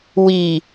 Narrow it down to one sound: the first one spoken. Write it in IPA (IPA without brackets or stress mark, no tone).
w